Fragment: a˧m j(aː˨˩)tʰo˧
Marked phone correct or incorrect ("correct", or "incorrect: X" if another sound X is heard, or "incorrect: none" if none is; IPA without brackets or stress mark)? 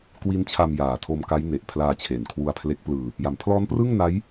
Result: correct